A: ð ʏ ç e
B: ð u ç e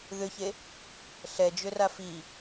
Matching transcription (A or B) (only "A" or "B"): A